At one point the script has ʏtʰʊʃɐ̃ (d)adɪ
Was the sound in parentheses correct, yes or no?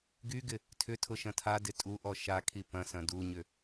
no